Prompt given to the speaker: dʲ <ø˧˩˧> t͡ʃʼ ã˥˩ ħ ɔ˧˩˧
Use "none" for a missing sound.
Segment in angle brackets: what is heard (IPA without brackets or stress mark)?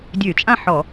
ø˧˩˧